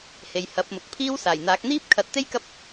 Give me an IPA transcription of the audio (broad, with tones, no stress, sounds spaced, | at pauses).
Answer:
h e˨ j h ɐ˨˥ p̚ m ʊ˨ k̚ pʰ iː˥ w s aː˨˩ j n̪ aː˨˥ k̚ n̪ iː˥ p̚ kʰ ɐ˨˥ t̚ t̪ e˥ j k ɐ˥ p̚